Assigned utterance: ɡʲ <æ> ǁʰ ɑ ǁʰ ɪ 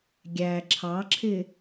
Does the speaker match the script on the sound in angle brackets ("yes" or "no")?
yes